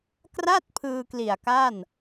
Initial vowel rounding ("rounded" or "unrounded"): unrounded